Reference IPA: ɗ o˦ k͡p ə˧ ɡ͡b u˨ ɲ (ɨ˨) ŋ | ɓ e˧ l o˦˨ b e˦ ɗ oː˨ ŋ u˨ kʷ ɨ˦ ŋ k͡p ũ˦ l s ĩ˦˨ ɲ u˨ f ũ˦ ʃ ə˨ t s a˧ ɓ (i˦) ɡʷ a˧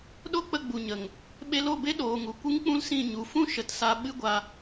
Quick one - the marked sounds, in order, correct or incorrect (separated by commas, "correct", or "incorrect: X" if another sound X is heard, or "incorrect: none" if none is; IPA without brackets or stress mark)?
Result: incorrect: ə˨, incorrect: ɨ˦